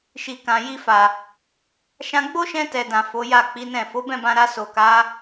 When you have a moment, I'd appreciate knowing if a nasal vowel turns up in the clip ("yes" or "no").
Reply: yes